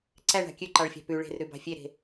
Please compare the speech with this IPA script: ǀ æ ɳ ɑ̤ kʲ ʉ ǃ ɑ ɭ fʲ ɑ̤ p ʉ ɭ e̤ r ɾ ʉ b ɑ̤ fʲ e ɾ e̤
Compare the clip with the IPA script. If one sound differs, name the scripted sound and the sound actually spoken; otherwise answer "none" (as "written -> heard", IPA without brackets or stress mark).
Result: none